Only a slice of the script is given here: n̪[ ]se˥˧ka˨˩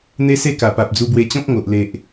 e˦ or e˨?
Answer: e˦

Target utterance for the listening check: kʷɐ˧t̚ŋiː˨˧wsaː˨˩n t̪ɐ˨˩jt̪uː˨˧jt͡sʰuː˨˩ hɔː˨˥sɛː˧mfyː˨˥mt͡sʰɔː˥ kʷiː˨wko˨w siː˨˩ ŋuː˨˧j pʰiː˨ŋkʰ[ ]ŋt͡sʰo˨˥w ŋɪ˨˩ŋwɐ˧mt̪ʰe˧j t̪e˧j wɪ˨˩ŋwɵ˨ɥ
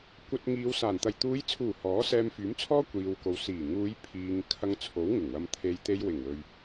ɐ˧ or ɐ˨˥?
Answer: ɐ˧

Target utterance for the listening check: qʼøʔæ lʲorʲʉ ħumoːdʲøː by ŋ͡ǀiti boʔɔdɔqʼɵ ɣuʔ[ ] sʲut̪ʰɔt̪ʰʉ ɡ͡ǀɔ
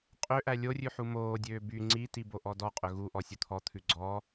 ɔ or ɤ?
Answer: ɔ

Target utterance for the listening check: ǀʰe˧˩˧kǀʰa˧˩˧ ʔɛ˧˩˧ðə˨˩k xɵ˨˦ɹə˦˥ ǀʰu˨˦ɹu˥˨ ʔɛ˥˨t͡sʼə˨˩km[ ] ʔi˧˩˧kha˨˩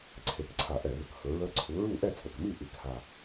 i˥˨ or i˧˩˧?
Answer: i˥˨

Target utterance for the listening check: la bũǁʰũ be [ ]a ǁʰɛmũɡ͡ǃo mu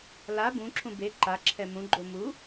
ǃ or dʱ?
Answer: ǃ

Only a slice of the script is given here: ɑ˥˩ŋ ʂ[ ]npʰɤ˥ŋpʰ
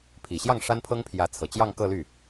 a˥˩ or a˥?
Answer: a˥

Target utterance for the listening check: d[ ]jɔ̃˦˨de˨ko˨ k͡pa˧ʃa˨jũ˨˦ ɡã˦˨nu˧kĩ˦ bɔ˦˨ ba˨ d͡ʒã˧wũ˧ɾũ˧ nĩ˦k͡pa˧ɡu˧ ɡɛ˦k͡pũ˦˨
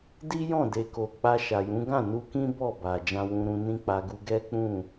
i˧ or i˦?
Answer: i˦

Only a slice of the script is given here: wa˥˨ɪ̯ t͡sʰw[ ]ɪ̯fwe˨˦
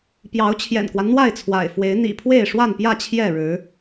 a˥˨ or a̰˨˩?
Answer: a̰˨˩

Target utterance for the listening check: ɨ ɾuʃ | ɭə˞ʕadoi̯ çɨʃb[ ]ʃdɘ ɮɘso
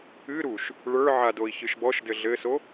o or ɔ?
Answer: ɔ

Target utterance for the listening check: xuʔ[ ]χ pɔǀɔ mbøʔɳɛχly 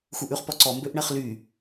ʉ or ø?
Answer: ʉ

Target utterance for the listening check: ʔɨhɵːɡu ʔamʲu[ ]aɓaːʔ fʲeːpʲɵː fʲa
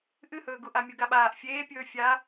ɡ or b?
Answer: ɡ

